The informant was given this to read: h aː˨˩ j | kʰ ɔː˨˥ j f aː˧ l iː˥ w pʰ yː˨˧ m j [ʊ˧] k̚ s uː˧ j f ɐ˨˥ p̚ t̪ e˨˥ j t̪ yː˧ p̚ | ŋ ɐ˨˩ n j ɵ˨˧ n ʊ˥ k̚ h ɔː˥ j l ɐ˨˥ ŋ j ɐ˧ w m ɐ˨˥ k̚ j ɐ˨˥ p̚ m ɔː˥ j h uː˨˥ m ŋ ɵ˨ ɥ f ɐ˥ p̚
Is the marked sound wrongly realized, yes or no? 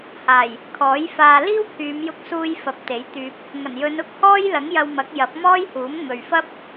no